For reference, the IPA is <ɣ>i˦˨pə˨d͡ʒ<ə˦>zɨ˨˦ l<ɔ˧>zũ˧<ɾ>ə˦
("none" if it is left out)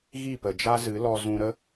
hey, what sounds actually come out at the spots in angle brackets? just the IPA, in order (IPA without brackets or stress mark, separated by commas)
ɣ, a˦, ɔ˧, ɾ